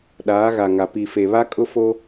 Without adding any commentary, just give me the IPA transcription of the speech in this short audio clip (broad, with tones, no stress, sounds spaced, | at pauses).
ɗ aː˨˦ ɣ a˨ ŋ a˨ p i˨ f e˨ β a˦ kʼ ʊ˦ f o˦